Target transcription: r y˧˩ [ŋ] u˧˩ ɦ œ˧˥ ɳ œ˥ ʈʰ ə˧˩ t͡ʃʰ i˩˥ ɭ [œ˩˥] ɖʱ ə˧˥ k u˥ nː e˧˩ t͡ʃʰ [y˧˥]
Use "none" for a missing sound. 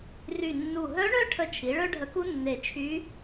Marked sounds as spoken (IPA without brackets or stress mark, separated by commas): nː, œ˥, y˧˥